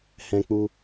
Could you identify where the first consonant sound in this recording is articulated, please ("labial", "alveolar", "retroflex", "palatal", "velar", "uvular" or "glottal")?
glottal